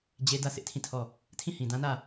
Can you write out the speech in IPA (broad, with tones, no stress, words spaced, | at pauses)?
d͡ʑe˦ dä˦˨ sʰɪ˦ʔtʰĩ˦˨tʰɔ˦˨ | tʰĩ˦˨hĩ˨dã˦nä˦˨